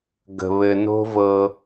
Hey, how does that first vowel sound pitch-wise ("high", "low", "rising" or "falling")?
low